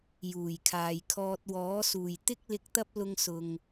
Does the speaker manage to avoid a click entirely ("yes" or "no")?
yes